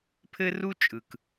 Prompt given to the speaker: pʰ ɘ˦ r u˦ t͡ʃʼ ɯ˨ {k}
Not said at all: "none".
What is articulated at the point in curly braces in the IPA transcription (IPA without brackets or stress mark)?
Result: k